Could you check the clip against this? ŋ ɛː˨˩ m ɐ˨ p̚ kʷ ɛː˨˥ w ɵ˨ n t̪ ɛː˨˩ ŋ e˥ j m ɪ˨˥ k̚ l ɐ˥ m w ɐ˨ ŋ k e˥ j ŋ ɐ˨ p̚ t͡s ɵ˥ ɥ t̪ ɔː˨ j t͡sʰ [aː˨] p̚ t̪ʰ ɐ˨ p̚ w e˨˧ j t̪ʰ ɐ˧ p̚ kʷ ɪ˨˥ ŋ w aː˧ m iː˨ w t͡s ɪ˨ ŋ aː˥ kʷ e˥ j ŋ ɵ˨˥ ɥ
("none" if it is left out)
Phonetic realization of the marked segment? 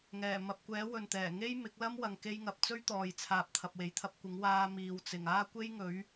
aː˨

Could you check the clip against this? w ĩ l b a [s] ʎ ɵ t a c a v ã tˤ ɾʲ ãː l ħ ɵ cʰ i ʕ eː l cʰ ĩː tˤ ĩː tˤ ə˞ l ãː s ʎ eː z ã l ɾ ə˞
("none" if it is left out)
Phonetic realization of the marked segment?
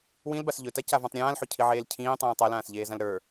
s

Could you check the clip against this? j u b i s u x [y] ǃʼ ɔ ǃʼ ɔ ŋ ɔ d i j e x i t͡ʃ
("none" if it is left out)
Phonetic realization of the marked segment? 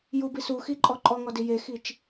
i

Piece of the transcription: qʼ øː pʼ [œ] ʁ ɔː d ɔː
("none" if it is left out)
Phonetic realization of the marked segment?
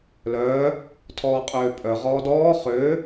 œ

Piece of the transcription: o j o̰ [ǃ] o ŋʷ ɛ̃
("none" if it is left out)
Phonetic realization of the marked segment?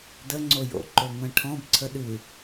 ǃ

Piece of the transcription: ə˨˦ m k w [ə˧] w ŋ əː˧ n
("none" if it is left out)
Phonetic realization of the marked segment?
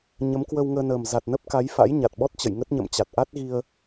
ə˧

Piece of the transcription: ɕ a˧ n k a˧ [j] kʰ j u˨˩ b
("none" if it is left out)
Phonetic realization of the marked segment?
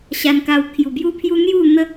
w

